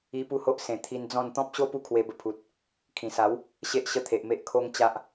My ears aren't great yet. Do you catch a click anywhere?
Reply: no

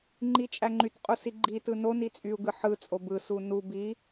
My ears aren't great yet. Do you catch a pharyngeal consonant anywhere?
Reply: yes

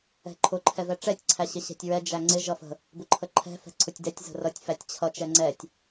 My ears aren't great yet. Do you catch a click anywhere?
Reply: yes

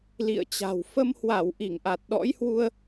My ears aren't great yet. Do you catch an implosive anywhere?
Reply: yes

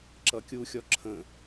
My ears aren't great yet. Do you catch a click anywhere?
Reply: yes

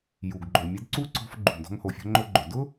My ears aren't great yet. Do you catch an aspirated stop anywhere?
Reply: no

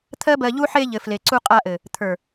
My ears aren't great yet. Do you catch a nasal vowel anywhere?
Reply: no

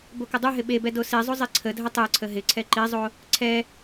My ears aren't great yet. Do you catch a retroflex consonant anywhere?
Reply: no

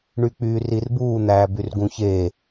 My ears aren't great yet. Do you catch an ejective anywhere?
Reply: no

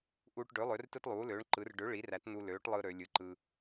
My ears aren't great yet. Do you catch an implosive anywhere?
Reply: no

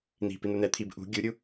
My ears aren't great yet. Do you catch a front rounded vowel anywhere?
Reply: no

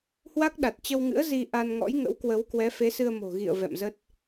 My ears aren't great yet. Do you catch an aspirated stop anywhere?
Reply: no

